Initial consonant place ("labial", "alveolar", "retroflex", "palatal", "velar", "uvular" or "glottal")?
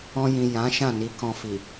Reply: palatal